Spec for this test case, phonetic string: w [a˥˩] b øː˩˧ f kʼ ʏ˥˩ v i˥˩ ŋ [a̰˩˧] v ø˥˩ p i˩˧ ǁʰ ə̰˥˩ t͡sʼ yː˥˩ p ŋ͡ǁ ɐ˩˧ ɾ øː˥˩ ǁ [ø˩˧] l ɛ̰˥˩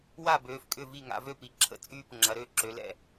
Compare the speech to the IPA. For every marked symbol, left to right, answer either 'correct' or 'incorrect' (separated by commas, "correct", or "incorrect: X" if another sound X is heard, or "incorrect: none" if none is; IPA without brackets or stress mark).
correct, correct, correct